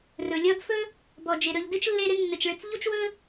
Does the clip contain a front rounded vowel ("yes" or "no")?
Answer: no